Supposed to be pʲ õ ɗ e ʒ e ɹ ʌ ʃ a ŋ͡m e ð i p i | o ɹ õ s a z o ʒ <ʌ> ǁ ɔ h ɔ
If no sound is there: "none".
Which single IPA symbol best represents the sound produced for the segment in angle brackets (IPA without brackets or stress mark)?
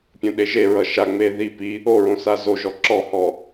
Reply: ɔ